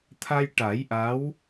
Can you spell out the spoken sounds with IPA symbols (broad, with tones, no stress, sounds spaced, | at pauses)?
t̪ʰ a˧ j ʈ a˨˩˦ j ʔ a˧˥ w